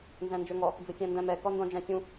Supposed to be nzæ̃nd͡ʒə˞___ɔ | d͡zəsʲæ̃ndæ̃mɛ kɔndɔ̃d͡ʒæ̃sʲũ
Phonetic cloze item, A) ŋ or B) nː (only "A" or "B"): A